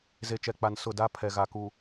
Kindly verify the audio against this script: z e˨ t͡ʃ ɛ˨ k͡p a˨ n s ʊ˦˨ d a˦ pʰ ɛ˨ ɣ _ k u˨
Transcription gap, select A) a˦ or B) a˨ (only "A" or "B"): B